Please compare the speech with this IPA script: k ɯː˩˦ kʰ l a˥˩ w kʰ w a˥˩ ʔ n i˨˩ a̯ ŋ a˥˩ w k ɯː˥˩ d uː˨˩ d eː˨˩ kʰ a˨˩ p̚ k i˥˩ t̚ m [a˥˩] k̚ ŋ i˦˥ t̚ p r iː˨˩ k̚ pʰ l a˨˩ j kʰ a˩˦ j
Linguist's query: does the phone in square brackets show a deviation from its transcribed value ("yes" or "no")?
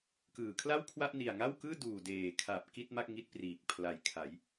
no